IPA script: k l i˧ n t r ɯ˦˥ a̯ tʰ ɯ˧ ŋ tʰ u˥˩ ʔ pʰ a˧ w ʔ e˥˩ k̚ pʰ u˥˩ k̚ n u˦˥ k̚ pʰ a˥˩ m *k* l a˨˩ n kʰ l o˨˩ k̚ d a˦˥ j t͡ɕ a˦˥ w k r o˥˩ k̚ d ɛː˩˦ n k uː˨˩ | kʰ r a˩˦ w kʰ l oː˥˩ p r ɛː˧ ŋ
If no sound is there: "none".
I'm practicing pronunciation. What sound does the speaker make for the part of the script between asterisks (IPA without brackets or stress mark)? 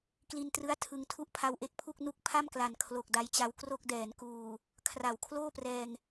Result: k